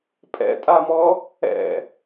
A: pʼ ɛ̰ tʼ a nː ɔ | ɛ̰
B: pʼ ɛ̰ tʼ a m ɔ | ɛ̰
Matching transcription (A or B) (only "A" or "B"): B